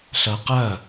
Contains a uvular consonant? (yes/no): yes